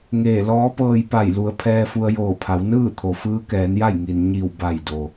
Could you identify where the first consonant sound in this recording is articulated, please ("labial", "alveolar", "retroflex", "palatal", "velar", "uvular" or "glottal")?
velar